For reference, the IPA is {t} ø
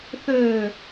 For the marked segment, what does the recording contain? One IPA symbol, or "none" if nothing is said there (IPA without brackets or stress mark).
θ